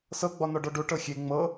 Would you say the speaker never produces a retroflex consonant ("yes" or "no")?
no